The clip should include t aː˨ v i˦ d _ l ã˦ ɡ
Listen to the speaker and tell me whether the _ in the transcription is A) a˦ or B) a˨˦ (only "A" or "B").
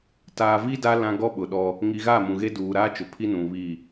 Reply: A